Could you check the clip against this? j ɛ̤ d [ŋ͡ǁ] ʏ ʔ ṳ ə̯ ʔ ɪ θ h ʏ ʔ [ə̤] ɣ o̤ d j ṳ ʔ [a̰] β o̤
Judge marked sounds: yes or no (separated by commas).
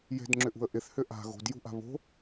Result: yes, no, no